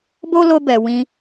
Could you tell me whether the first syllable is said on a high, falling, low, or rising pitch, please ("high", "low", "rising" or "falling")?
high